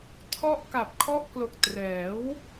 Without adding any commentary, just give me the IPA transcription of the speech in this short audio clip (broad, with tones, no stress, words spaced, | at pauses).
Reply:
tʰɔ˥˩ʔ ka˨˩p̚kʰɔ˦˥ʔklo˨˩k̚ trɛː˩˦w